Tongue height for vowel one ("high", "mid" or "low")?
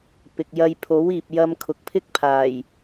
high